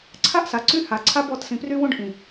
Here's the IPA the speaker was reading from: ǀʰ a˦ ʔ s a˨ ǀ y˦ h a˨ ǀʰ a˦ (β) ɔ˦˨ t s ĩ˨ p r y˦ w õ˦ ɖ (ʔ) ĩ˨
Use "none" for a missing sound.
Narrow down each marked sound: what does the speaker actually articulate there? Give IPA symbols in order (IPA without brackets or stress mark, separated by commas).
b, ʔ